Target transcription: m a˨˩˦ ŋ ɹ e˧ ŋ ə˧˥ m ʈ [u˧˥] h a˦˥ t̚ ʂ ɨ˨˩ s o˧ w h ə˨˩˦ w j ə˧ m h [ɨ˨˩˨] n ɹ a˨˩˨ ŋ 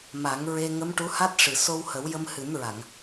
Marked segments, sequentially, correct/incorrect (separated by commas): correct, incorrect